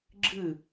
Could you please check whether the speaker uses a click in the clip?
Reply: yes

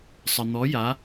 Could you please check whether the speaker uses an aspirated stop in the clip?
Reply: no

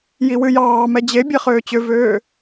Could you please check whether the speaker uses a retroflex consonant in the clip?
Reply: no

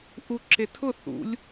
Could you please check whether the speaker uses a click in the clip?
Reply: yes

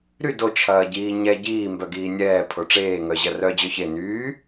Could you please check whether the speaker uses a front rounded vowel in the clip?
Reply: yes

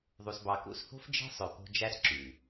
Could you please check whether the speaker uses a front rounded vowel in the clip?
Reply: yes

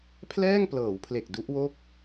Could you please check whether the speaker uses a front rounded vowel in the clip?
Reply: no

